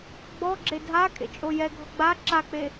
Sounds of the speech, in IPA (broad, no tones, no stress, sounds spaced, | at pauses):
ɡ͡b ɔ ɡ͡ǁ e dʱ a kʼ ḛ t͡ʃʼ o j ɛ ɡʱ ɔ ɡ͡b a ǁ a k͡p e